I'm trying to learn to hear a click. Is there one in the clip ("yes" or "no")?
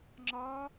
yes